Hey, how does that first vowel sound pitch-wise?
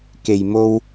low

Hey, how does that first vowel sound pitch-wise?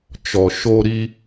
low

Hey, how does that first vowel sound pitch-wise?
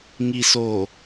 low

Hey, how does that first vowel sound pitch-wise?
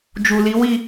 low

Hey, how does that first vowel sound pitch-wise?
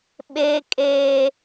high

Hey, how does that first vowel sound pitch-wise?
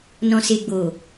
low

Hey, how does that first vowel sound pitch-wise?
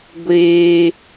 high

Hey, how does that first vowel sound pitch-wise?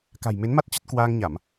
low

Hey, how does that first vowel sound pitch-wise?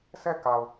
falling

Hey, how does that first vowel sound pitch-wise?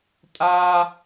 high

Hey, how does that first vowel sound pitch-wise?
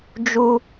high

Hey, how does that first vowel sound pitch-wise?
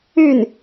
falling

